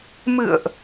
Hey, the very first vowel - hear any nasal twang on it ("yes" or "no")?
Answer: no